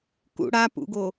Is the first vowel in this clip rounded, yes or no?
yes